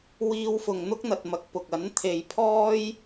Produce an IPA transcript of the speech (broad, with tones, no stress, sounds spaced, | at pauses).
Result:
w iː˧ w f ʊ˨ ŋ n̪ ʊ˥ k̚ n̪ ɐ˧ t̚ m ɐ˧ k̚ p ʊ˨ k̚ ɐ˨˥ n t̪ʰ e˨ j pʰ ɔː˥ j